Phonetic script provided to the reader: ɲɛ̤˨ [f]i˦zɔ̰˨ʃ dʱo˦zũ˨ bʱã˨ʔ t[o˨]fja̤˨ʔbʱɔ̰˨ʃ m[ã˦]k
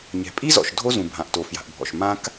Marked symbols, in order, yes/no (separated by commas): no, yes, yes